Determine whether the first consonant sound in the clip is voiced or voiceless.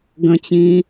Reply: voiced